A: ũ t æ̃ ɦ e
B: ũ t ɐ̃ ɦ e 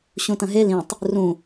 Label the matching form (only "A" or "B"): B